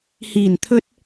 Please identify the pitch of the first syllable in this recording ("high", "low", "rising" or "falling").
low